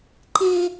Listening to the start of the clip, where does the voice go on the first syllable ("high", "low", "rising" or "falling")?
high